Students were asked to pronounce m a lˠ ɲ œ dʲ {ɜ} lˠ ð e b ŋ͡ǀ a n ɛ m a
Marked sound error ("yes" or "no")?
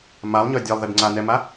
no